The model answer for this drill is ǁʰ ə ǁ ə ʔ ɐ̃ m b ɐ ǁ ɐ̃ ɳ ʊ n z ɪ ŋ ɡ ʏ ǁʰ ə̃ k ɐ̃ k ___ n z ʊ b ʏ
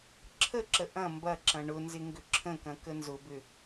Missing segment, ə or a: ə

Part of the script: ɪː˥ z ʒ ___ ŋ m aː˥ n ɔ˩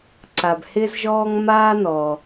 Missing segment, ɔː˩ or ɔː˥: ɔː˥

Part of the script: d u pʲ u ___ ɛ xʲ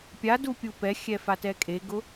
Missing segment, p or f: p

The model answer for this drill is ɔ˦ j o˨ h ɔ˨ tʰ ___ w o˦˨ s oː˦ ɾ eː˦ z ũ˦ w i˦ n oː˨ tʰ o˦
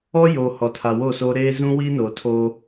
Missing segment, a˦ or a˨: a˨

